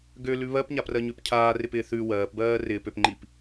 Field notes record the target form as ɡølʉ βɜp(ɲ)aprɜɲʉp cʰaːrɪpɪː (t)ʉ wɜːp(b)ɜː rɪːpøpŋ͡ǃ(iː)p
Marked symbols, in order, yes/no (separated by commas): yes, no, yes, no